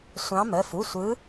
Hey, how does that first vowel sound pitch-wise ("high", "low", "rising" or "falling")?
rising